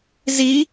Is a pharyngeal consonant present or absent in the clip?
absent